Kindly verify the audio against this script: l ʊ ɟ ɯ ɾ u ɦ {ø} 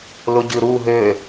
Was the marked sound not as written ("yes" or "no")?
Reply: no